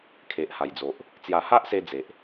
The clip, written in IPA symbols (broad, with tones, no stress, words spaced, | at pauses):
kʰe˨ʔha˨˩jd͡zo˨ʔ | t͡sja˨˩ha˦ʔse˧ d͡ze˨ʔ